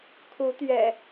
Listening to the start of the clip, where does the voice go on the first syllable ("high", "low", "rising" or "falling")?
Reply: rising